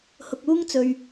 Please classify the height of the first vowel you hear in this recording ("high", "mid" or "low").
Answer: high